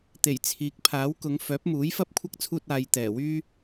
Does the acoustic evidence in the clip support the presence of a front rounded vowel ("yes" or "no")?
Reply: yes